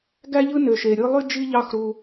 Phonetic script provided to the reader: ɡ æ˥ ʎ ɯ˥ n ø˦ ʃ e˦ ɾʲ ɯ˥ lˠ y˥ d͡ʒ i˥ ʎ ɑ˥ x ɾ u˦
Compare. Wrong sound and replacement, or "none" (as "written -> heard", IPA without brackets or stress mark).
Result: none